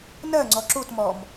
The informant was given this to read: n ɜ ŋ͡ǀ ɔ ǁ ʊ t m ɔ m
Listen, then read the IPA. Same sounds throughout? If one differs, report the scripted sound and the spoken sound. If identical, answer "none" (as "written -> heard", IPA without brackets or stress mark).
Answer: ʊ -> u